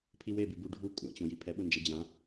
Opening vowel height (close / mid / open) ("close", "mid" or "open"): close